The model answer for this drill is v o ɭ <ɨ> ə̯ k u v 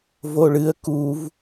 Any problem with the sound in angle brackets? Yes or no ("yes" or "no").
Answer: no